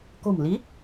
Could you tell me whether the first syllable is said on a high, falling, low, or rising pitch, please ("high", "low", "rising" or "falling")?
low